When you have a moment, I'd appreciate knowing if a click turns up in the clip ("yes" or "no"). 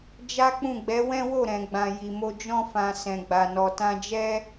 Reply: no